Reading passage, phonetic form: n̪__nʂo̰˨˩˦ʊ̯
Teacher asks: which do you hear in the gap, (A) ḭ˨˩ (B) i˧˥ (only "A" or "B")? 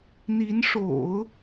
B